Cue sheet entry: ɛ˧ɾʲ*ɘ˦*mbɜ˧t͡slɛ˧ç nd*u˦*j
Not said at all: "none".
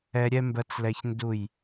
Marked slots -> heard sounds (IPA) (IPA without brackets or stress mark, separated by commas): ɛ˦, u˦˨